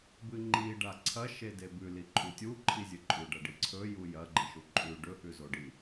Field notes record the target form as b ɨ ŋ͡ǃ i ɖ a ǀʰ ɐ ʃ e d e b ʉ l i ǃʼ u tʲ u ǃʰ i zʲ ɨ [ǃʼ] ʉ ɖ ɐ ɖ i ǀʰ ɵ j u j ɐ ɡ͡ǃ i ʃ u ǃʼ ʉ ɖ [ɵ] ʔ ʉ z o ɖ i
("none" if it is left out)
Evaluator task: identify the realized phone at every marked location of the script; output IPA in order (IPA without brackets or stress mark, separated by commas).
ǃʼ, ɵ